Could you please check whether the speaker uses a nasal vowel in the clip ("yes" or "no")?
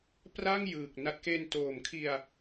no